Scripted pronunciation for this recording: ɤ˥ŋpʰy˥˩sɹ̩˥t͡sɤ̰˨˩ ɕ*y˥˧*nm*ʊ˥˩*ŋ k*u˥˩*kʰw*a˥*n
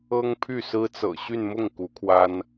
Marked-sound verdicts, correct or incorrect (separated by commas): correct, correct, incorrect, correct